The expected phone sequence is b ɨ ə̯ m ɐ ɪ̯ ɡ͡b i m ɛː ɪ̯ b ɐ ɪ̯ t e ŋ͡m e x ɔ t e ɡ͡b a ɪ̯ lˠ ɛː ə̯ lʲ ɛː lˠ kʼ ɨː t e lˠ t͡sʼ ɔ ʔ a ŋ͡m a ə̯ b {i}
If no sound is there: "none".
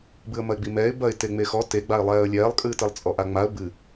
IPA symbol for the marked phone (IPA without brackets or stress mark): ɨ